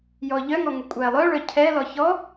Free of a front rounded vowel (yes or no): no